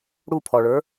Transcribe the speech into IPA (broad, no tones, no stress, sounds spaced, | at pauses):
ɽ u pʰ ɔ ɭ ə˞